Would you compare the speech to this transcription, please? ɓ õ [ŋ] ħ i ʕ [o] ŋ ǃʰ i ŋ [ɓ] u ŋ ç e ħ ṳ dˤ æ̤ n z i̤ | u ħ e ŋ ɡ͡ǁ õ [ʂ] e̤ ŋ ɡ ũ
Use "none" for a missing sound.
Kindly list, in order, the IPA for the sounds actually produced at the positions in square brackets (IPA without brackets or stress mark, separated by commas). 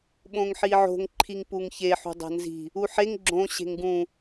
ŋ, o̤, p, ɕ